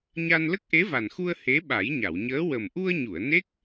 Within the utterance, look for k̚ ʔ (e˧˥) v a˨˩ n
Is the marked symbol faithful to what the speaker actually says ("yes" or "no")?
yes